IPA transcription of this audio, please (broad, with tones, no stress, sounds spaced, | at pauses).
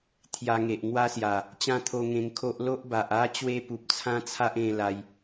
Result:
t̪ʰ j a˧ ŋ e˨ ʔ ŋ w a˦ s j a˨˩ | t͡ɕ ã˦ t̪ʰ o˧ ŋ ẽ˧ ŋ kʰ o˦ ʔ l o˦ ʔ b a˨ ʔ a˦ t͡ɕ w e˦ p u˨ p̚ t͡sʰ ã˦ t͡sʰ a˦ ʔ ẽ˥˧ l a˧ j